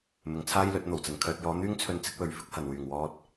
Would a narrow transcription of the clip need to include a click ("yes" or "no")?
no